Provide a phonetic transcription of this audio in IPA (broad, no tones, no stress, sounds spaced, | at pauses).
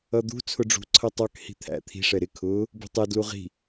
ʌ d̪ ṳ t͡sʰ ʊ ɖ͡ʐ ṳ ǀʰ ʌ tˤ ɑ k h i̤ t̪ʰ æ̰ t̪ʰ i̤ ʂ ɛ ɾ ɪ kʰ ʊː | b ṳ tˤ ɛ d l u ʁ i̤